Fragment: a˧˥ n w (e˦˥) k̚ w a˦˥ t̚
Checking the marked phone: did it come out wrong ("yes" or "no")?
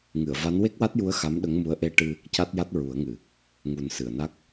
no